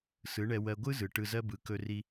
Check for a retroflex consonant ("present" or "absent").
present